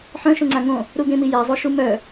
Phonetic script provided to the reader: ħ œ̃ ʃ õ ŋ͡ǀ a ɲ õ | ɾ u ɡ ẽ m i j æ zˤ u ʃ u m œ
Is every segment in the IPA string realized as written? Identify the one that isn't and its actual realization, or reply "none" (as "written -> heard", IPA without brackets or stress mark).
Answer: ɲ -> ŋ